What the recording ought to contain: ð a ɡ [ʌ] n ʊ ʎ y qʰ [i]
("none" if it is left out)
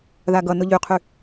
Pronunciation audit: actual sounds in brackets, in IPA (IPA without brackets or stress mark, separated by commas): ʌ, y